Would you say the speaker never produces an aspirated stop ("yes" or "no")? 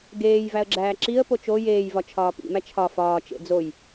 no